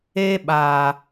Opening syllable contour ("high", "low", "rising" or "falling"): high